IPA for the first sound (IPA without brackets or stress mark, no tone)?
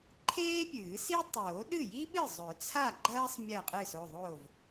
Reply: ǃʰ